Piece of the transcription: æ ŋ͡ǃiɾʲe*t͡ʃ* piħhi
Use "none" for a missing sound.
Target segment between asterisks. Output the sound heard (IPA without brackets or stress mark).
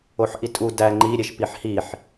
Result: ʃ